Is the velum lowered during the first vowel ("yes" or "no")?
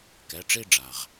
no